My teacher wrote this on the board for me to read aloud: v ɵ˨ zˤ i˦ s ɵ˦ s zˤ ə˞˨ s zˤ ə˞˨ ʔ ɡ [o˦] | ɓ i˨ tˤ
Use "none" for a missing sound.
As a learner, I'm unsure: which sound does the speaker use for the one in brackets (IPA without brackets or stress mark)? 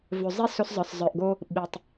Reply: o˦